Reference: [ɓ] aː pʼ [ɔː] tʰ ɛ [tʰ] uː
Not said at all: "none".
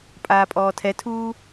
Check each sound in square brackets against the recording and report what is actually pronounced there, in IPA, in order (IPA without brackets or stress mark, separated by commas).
pʼ, ɔː, tʰ